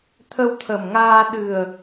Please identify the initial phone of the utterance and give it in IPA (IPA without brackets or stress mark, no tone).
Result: t̪ʰ